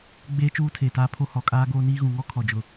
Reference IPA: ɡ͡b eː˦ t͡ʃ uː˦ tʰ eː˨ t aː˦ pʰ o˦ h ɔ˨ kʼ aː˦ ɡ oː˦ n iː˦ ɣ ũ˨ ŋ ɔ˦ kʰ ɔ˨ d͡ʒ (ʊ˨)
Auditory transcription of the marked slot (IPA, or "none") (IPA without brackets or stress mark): ʊ˨